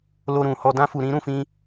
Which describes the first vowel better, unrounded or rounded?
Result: rounded